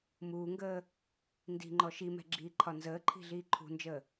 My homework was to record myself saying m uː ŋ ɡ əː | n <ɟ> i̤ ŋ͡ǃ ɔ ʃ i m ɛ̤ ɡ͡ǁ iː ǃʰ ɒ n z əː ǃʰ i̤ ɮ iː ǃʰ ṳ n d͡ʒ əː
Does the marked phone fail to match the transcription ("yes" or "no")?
yes